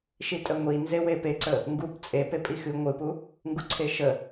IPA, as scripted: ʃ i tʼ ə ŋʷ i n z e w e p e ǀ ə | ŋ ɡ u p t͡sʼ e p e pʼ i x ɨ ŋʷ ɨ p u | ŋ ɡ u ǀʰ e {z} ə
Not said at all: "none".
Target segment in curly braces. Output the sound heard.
ʃ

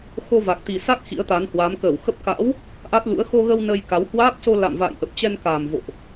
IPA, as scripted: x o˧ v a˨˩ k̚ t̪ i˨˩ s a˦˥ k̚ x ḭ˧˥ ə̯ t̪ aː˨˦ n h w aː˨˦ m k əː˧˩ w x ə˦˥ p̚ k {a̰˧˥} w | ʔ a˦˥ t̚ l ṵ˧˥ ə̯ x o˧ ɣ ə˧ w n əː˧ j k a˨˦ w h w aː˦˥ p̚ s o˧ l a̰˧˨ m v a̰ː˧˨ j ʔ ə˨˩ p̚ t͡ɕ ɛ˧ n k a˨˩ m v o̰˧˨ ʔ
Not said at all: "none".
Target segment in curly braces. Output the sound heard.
a̰˧˥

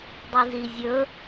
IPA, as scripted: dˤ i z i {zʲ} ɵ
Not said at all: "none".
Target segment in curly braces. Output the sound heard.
zʲ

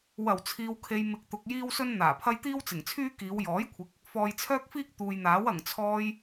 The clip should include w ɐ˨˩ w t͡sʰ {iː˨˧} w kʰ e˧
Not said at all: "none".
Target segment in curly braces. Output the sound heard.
iː˧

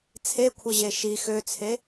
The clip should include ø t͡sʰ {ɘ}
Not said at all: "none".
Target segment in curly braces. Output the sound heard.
e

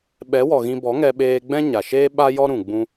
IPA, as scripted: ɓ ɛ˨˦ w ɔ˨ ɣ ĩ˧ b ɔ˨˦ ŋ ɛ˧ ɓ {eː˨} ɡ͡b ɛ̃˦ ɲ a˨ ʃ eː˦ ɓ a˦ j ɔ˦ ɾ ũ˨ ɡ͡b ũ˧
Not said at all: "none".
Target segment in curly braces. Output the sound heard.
eː˧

